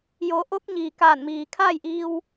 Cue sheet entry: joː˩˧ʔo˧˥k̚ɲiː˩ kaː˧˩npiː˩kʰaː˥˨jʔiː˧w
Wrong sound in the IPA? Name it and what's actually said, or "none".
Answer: p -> m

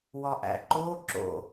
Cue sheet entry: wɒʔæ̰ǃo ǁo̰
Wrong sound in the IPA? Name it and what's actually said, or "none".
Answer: none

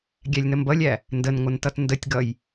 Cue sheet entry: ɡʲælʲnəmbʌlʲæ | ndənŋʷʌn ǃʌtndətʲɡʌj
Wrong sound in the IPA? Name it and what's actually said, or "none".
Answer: ǃ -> t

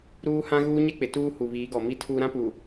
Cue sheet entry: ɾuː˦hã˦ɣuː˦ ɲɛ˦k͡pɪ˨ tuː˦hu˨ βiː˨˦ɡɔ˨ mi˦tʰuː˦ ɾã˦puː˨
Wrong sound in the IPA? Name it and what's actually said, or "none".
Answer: none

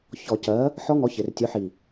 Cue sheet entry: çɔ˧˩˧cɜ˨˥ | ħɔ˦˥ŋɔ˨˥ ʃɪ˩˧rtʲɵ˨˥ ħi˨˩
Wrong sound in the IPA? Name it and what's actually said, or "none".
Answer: ʃ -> ç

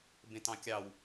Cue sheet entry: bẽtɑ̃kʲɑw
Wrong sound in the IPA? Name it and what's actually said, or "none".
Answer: none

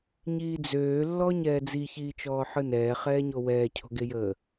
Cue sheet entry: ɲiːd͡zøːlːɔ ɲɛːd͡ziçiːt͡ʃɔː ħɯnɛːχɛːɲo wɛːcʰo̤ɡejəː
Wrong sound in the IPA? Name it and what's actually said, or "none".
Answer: none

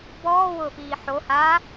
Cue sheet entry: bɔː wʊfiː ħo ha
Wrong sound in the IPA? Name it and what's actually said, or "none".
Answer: none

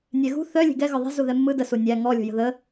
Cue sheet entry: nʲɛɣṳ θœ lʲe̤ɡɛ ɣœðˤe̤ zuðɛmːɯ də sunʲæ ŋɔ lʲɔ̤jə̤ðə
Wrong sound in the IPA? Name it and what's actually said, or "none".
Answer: none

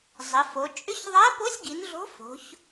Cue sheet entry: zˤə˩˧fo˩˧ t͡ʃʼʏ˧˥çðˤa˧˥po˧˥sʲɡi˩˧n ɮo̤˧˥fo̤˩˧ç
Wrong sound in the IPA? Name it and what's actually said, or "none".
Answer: none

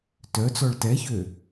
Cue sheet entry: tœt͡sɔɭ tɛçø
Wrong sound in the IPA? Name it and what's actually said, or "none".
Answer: none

